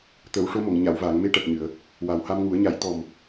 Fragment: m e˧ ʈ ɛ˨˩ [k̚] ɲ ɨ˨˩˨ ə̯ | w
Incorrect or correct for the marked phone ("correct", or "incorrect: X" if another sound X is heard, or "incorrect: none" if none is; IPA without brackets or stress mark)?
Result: correct